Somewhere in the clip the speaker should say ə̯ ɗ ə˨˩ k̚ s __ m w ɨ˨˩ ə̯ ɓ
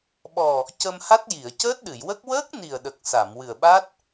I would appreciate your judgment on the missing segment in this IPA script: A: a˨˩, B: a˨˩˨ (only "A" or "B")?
B